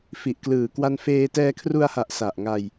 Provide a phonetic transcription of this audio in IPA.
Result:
f i˨˩ ʔ k l ɯː˨˩ k w a˧ n f eː˧ t ɛː˧ kʰ r u˧ a̯ h a˨˩ ʔ s a˨˩ ʔ ŋ a˧ j

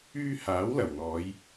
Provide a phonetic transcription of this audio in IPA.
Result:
yː˧ h aː˨˥ w l ɐ˨˩ w n̪ ɔː˨˧ j

